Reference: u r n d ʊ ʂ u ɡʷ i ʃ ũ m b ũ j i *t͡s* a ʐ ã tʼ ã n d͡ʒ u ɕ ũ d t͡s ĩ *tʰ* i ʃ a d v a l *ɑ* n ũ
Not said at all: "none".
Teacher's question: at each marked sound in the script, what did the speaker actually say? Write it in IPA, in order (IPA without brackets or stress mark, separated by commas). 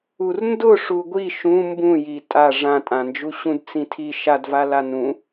tʼ, tʰ, a